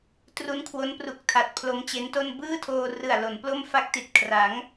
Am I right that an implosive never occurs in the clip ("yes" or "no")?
yes